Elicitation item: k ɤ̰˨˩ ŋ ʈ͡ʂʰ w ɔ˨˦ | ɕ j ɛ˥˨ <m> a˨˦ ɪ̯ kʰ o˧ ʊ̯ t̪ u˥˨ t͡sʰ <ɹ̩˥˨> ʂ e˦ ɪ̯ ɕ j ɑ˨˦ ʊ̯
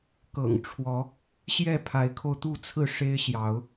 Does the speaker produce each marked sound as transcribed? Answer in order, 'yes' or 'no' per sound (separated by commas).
no, yes